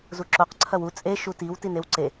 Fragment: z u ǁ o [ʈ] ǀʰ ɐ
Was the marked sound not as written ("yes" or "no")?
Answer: yes